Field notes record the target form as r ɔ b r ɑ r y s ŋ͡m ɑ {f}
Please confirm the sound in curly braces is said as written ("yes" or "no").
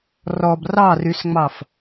yes